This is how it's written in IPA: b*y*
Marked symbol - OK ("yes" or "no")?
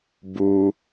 no